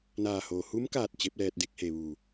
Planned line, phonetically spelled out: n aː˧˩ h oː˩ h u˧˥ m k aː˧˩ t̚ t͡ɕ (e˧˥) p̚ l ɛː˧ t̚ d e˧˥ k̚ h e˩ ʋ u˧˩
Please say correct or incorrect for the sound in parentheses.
correct